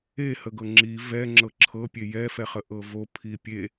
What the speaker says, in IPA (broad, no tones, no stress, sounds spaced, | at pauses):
e h ə ɡ ɤ ŋ͡ǁ i v ɛ ŋ͡ǁ ɤ ǁʰ ɤ pʲ e j ɛ f ɛ χ ə ʔ ɤ v o pʰ i pʲ e